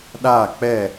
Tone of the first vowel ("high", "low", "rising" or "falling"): falling